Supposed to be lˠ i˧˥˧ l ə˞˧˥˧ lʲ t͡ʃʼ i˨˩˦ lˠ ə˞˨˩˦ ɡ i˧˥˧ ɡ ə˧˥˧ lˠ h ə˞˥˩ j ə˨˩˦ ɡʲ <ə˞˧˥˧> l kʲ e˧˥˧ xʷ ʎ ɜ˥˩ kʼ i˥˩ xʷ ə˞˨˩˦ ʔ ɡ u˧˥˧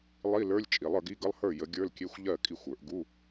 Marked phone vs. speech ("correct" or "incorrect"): correct